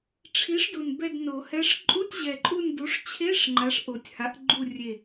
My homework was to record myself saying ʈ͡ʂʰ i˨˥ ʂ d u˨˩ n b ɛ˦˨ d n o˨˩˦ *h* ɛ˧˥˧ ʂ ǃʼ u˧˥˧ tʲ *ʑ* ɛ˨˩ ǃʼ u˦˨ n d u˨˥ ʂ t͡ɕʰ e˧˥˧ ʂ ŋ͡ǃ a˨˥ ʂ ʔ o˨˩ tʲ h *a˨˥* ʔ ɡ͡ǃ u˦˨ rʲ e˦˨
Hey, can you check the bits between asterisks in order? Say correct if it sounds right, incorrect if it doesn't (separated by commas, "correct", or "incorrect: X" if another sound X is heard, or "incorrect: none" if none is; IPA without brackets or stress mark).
correct, correct, correct